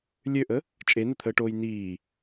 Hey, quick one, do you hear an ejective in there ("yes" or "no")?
yes